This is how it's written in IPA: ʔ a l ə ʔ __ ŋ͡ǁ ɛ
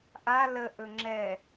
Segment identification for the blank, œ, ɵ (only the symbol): ɵ